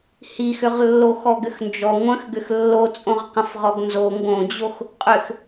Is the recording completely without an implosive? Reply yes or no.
yes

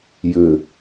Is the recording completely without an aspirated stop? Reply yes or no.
yes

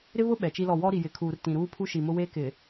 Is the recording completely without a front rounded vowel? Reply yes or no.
yes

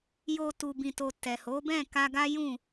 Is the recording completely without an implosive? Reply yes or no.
yes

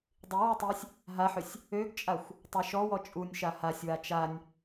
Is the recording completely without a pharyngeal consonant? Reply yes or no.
no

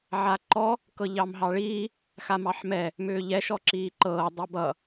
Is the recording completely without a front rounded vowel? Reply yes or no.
no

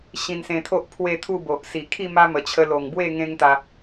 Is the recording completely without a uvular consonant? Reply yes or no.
yes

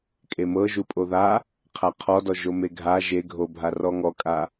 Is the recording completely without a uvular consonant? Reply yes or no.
no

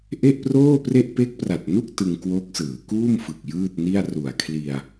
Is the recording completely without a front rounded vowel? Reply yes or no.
yes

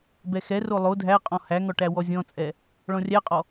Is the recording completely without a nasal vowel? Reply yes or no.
no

